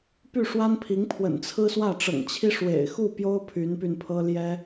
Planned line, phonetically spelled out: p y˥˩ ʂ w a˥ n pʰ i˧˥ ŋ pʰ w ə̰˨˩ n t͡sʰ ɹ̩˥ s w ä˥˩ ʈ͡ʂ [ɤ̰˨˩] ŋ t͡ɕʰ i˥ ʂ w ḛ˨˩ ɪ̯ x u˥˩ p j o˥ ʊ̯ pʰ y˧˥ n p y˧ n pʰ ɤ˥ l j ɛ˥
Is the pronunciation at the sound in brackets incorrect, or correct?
correct